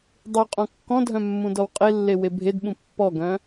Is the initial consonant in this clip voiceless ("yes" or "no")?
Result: no